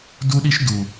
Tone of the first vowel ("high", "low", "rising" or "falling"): high